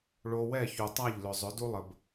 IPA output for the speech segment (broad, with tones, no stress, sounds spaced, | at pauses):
ɭ o˧ w ɛ˦˨ ç u˨ tˤ a˦˨ ʎ l ʏ˨ zˤ ʏ˨˦ d u˦ lˠ ə˨ b